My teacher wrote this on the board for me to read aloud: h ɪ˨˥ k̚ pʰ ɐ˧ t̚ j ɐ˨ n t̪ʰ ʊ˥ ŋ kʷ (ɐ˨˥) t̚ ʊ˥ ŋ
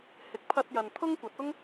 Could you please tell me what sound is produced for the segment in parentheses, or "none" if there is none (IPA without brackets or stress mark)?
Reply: ɐ˨˥